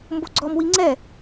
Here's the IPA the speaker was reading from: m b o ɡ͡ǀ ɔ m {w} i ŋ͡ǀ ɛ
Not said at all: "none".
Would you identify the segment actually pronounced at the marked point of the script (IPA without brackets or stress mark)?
w